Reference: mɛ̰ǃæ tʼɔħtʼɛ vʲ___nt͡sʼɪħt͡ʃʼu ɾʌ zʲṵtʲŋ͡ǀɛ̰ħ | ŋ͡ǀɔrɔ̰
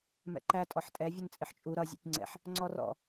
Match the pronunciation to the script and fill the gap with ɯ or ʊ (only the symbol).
ʊ